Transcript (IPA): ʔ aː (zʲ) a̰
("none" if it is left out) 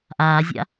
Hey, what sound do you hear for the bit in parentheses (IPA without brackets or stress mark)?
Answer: zʲ